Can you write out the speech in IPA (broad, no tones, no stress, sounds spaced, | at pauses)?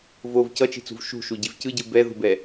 v o v c ʌ t͡ʃ i̤ t͡s ṳ v ʃ ṳ ʃ u ɟ i v c ɯ ɟ ɯ b ɛ ð ṳ b ɛ